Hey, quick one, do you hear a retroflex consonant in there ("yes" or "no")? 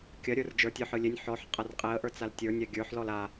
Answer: no